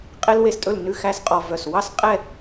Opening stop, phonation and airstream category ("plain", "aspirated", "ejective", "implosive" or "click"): ejective